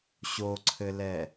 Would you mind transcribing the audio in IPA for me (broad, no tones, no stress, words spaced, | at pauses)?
ɕoǀʰɘlɛ